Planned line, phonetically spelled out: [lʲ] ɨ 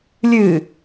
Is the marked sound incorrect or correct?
correct